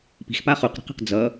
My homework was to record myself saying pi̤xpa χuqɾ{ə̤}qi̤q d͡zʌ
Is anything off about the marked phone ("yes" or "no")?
no